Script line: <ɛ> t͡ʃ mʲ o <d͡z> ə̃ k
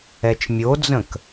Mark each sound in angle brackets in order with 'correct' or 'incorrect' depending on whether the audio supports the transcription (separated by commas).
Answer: correct, correct